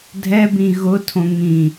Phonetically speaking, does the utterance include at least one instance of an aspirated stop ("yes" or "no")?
yes